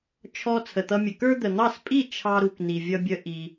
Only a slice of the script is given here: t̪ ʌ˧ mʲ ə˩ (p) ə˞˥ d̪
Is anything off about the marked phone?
yes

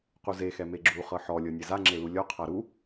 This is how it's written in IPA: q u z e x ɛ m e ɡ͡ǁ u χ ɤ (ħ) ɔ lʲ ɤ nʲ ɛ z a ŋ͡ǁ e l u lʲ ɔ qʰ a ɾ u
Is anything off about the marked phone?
no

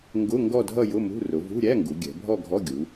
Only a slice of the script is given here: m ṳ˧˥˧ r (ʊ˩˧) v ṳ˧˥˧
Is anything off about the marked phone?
no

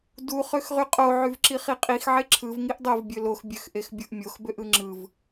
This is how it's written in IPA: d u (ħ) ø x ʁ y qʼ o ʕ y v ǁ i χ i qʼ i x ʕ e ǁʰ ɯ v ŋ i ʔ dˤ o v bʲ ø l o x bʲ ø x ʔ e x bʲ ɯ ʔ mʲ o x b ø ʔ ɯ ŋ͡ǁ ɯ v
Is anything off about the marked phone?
yes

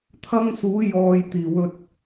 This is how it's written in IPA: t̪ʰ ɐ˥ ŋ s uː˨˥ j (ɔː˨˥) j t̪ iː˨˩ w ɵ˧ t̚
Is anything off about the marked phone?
yes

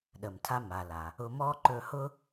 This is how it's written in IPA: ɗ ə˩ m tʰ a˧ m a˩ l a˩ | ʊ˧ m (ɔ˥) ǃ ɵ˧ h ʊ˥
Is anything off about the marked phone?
no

